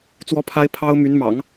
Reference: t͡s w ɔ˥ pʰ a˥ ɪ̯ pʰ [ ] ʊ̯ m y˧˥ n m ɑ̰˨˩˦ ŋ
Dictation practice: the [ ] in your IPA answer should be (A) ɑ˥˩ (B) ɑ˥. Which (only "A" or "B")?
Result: B